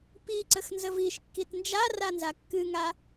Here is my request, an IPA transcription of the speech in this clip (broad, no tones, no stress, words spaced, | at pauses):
pi ǀəxnzəviʃkːit nd͡ʒara nzakːɨŋa